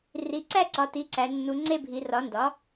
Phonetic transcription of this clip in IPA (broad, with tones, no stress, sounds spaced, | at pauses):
r i˩˧ ǀ æ˥˧ ǀ ɒ˩˧ t i˩˥ ǀ æ˩˧ nː u˩˧ ŋ͡ǀ e˥˧ bʱ i˩˧ r ɒ˩˥ n d ɒ˩˥